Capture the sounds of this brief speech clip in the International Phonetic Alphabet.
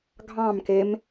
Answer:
ɡʱ ɑ̃ m k e m

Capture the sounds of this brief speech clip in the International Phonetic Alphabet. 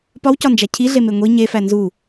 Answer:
p ɒ w c ɒ n d͡ʒ æ cʰ i ɮ e m e ŋʷ i ɲ e f æ n z u

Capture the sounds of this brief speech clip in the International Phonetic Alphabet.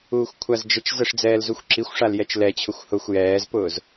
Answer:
uː xʷ kʷʰ a z d͡ʒ ə t͡ʃ z ə ʂ d͡z ɛː l z u xʷ ǁ i xʷ ʂ a l j ɛ t͡ʃ l ɛ t͡ɕʰ ʊ xʷ h ʊ xʷ j ɛː z p ʊː z

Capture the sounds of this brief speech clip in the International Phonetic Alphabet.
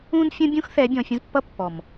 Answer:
ũ˦ n fʲ ə̃˦ bʲ ũ˦ x θ ɛ˨˦ bʲ ɔ̃˨ fʲ ə̃˦ z pː ʌ˦ pː ɔ˨ m

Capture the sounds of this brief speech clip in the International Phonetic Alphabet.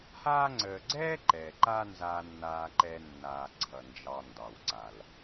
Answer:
h aː˦ ŋ͡ǀ əː˨ ɡ͡ǀ ɛː˥ ǃ ɛ˩ ǃ a˦ n z aː˨ nː aː˨ ǃ ɛ˨ nː aː˩ ǀʰ ʌ˩ n d͡ʒ ɑ˨ n d ɑ˩ w ǀ a˩ l

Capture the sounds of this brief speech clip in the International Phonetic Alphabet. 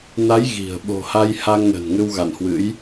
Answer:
n a˨˦ j ɣ i̤˨˩ ə̯ ɓ o̤˨˩ h a˧ j h a˧ ŋ n ə̤˨˩ n ŋ ɨ˧ w ɣ a̰˧˨ n h w ɨ̰˧˥ j

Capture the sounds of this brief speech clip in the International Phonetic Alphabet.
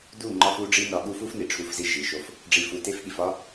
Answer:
d u˦˨ ŋ͡ǃ ɒ˦ f u˦ ɖ͡ʐ i˦ n ɒ˨ ɠ u˦ f u˦ f n i˨ ʈ͡ʂʰ u˦ f z i˦ ʒ i˨ ʃ o˦ f | ɖ͡ʐ i˨ f u˨ t e˦ f ɠ i˨ f ɒ˦

